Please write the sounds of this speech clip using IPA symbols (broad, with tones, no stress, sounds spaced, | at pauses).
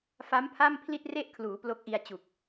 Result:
f a˦˥ m pʰ a˥˩ m pʰ l i˥˩ t̚ r e˥˩ ʔ kʰ l uː˩˦ p l o˦˥ k̚ ʔ i˧ a̯ t͡ɕ u˨˩ k̚